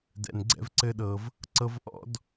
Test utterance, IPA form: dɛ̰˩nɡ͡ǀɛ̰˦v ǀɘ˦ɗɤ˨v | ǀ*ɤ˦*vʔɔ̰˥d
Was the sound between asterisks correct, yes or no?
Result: yes